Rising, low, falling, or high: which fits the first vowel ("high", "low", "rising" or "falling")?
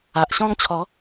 low